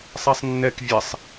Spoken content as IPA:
sˤ ɛ sˤ nː ɛ k vʲ ɛ sˤ

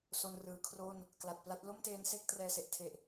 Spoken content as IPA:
s o˧ n r ɯː˩˦ kʰ r o˥˩ n | k l a˨˩ t̚ p l a˦˥ t̚ l o˥˩ m t eː˦˥ n s e˥˩ k̚ t r ɛː˧ s e˨˩ ʔ tʰ e˨˩ ʔ

